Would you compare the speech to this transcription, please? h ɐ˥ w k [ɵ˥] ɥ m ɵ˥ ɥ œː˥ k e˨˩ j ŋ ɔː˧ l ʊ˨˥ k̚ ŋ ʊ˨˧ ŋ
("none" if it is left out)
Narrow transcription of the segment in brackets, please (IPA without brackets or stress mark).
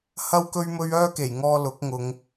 ɵ˥